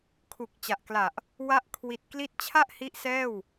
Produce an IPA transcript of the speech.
kʰ u˨˩ k̚ t͡ɕ a˨˩ ʔ k l a˨˩ ʔ | w a˦˥ ʔ kʰ w i˨˩ t̚ k l i˦˥ t̚ t͡ɕʰ a˥˩ ʔ h i˦˥ ʔ s ɛː˥˩ w

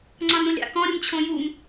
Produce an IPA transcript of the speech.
ŋ͡ǀ ɑ̃ n ɾ ũ lʲ ɑ̰ k ɔ̃ ɾʲ u m t͡ɕʰ õ j u m

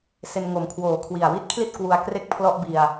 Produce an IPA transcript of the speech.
s e˧ n ŋ o˨˩ m kʰ w oː˨˩ kʰ w i˨˩ a̯ w i˦˥ t̚ kʰ l i˥˩ t̚ k w u˧ a̯ k r e˥˩ k̚ pʰ l ɔ˥˩ ʔ b i˧ a̯

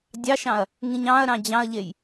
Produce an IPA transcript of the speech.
dʲ ɑ ʃ ɑ̃ ɐ̯ | ŋ ĩ ɲ ɑ̃ ɐ̯ ɾ ɑ̃ d͡ʑ ɑ̃ ɐ̯ ʎ e j

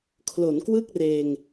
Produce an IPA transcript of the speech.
kʰ l o˩˦ n k w ɯ˥˩ k̚ r eː˧ ŋ

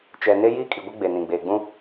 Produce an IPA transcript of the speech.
t͡ʃ ɛ˨ n e˦ j iː˦ kʼ i˨ ɡʷ ɛ˦ ɡ͡b e˨ n ĩ˨ ɡ͡b eː˨ ɡ͡b ũ˦

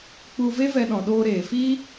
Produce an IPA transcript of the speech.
k͡p u˧ v e˦ v ɛ˧ ɗ ɔ̃˨ ɗ oː˧ ɾ eː˨ f iː˦

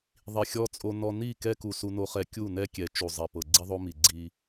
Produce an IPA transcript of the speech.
ðˤ i˨ xʲ ɔ˦ t͡sʼ o˦ n ɔ˦ n i˦˨ k ɛ˦ k u˨ s u˦ n o˦ χ ɛ˦ kʲ u˦˨ n ɛ˦ kʲ ɛ˨ t͡ʃ u˨ zˤ ɛ˨ p ɤ˨ ɡ͡ǀ i˦ ðˤ o˦ m i˨ ɡ͡ǀ i˦

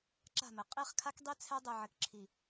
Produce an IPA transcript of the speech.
ǁ a̤˦˨ m ɘ˨ qʼ i˦˨ χ kʰ a˦ k dˤ i˦ t͡sʰ ɛ˦ dˤ ɘ˨ ʕ ɘ˨ k ǁʰ i˨

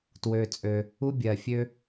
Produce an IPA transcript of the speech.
t w ø˩ t͡sʼ ø˩ | u˥ bʲ ɜ˩ fʲ ø˥

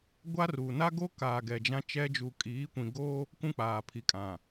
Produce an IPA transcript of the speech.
ɡʷ a˦ r uː˨ n a˦ ɡ o˦ k aː˨ ɡ ɛ˨ d͡ʒ ã˦ t͡ʃ ɛ˦ d͡ʒ u˨ kʼ iː˨˦ kʷ ĩ˨ ɡ oː˦ | k ũ˦ k͡p aː˨ pʰ i˨ kʼ ã˨

